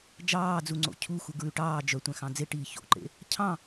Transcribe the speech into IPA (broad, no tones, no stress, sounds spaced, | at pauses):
d͡ʒ ɑː d͡z u ŋ͡ǀ o̰ cʰ u x u ɡ ɹ ʉ ʈ ɑː d͡ʒ œ tʷ æ̃ x ɑ̃ d͡z e ʈ iː ç o̰ ǃ ḛ | cʰ ɑ̃